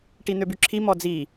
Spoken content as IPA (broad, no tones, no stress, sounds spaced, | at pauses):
ʈ i n̪ ø b y ǁʰ i m ɔ d͡z i